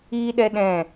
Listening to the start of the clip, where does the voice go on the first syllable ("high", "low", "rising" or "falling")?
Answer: high